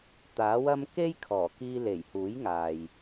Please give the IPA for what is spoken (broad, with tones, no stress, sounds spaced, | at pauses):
t̪ aː˨˥ w ɐ˥ m k e˥ j kʰ ɔː˨˩ k iː˧ l e˨˩ j h uː˨˥ j ŋ aː˨ j